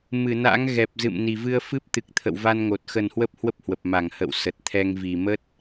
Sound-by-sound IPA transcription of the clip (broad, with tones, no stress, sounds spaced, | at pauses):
m ɨ˧˩ n a̰˧˥ ŋ ɣ ɛ˨˩ p̚ z ɨ̰˧˨ m n i˨˩ v ɨ˧ ə̯ f ɨ˦˥ p̚ t̪ ɨ˨˩ k̚ t̪ʰ ə̰˧˨ w v a˧ n ŋ o˨˩ t̚ x ə˨˩ n h w ə˦˥ p̚ h w ə˦˥ p̚ h w ə˨˩ p̚ m a˧˩ ŋ h ə̰˧˨ w s ə˨˩ t̚ t̪ʰ ɛ˧ ŋ v i˨˩ m ə˦˥ t̚